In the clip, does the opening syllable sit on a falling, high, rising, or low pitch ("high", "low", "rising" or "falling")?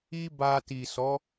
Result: high